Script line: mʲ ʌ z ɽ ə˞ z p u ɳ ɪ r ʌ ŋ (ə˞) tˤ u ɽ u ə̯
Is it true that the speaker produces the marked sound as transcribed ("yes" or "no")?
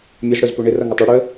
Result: no